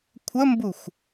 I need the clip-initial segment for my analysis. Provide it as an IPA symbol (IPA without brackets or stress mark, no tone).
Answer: kʷʰ